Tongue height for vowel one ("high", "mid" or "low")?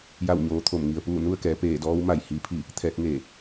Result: low